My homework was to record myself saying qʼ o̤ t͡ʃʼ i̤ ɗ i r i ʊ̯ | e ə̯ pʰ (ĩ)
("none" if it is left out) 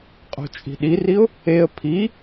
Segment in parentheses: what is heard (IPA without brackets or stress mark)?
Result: i